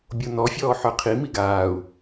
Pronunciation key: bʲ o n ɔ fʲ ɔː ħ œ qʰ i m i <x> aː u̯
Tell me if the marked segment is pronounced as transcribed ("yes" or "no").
no